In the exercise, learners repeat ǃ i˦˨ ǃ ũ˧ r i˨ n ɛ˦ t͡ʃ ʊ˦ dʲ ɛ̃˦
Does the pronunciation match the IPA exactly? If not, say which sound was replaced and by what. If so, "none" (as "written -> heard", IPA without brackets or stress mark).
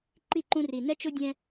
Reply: none